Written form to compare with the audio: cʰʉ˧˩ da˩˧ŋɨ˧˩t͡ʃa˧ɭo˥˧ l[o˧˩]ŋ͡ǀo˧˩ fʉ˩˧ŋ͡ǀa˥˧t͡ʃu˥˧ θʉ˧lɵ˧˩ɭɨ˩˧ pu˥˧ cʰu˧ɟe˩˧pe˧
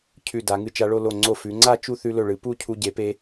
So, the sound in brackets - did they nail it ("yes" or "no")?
yes